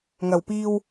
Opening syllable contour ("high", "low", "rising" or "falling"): low